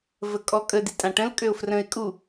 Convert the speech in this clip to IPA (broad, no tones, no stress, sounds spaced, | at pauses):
v ə kʼ ɔ kʼ ə d i tʼ ã ʈ ə̃ l kʼ ø ʊ̯ f r ə̃ ɪ̯ kʼ u